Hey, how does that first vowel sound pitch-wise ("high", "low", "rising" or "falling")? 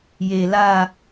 low